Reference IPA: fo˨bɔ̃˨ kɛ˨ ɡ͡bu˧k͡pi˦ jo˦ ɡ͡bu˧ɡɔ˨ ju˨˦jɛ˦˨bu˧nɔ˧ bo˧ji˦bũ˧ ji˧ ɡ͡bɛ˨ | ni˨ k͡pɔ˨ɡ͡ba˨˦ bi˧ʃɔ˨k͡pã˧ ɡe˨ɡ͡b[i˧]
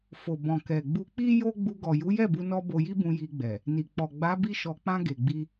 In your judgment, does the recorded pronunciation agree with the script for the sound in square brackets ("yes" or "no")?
yes